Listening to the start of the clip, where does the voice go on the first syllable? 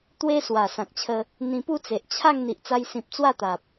high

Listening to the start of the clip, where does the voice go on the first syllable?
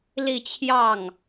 falling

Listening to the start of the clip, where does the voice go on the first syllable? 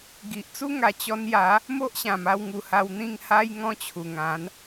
low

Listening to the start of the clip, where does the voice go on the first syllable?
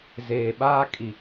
low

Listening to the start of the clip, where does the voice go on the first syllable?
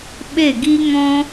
falling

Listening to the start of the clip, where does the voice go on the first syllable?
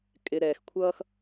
low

